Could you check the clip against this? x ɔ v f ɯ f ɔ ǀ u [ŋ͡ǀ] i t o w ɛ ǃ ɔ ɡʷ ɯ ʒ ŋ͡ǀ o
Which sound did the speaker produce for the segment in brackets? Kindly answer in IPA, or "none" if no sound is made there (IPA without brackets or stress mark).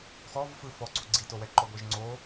ɡ͡ǀ